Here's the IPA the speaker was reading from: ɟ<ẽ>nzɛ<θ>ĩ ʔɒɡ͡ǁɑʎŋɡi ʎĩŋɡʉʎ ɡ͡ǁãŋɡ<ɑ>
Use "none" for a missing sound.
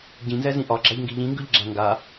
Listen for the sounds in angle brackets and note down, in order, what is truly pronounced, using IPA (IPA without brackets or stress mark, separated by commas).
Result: ĩ, z, a